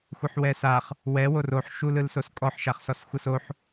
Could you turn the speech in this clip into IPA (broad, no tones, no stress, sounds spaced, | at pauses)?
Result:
xʷ ɯ ħ w ɛ s a χ | w ɛ w o r o ħ ʃ u l ɯ l s o s kʼ ɔ ħ ʃ a χ s ɔ s xʷ ɤ s o ħ